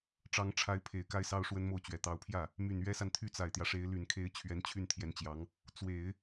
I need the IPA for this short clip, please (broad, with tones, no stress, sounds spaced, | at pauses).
ʈ͡ʂ ɑ˧˥ ŋ ʈ͡ʂʰ a˧˥ ɪ̯ pʰ e˨˩ ɪ̯ k a˥ ɪ̯ s ɑ˥ ʊ̯ ʂ w ə˥ n m o˥˩ ʊ̯ t͡ɕ ɥ ɛ˨˩ t̪ ɑ˧˥ ʊ̯ pʰ j ä˥˩ | m y˨˩ n ɥ ɛ˥ s a˨ n t̪ʰ y˥˩ t͡s a˨˩ ɪ̯ t̪ j ä˦ ʂ e˧˥ ɪ̯ l y˨˩ n kʰ e˥ ɪ̯ t͡ɕʰ ɥ ɛ˧˥ n t͡ɕʰ y˥˩ n t̪ʰ j ɛ˧˥ n t͡ɕ j ɑ˧˥ ŋ | t͡s w e˨˩˦ ɪ̯